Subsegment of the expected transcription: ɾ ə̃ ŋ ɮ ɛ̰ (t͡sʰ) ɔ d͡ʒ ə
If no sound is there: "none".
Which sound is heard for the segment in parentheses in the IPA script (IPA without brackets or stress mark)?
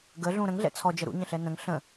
t͡sʰ